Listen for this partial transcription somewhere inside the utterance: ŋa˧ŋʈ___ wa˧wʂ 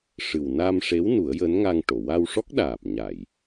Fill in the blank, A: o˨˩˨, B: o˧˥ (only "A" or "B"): A